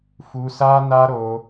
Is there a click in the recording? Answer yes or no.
no